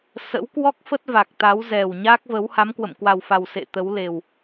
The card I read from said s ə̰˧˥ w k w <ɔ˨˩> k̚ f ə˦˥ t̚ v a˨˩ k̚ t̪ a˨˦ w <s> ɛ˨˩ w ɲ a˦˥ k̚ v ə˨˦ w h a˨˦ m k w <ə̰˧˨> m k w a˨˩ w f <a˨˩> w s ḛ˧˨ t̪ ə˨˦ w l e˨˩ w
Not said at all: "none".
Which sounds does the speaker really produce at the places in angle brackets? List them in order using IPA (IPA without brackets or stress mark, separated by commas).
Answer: ɔ˦˥, z, ə̰˧˨, a˨˩